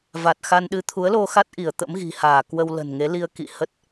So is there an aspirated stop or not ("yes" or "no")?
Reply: yes